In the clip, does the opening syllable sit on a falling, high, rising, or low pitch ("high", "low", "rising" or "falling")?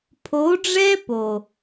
rising